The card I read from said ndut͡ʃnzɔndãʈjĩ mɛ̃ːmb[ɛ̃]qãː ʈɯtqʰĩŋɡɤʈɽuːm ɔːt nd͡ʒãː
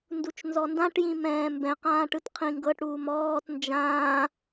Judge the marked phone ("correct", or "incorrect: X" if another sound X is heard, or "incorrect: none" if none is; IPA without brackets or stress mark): correct